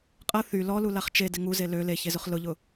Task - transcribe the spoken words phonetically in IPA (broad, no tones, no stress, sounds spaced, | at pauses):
qʼ ɐ θ y l ɔ l u l a χ t͡ʃ e d ɪ ŋ u z e l ø l e ç e z ʊ χ l ʊ ʎ ʊ